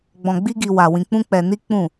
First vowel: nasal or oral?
nasal